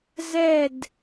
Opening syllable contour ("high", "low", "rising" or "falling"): falling